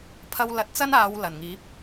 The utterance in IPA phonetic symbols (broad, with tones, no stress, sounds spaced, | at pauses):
pʰ ɐ˥ w l ɐ˧ t̚ t͡s ɐ˥ n aː˨˧ w l ɐ˨˩ n ŋ iː˨˥ p̚